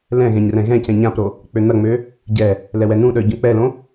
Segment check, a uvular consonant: absent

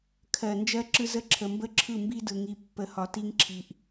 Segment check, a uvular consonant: absent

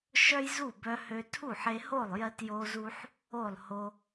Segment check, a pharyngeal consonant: present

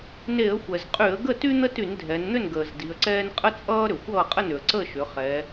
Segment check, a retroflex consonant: absent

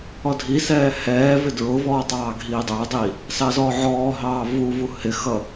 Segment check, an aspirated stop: absent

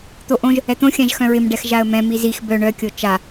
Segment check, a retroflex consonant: present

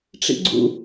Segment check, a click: present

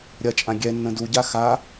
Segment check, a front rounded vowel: absent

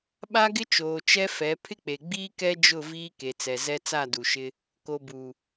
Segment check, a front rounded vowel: absent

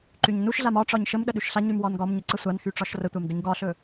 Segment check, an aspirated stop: absent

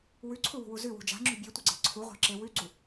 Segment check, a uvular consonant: present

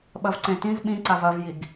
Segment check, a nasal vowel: present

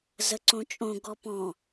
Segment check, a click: present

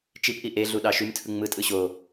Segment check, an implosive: present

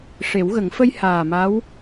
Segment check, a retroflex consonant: present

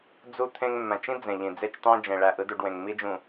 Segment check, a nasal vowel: present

